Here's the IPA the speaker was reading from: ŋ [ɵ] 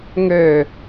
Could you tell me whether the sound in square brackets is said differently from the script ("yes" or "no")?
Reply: yes